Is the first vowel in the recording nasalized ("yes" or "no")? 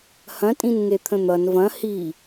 yes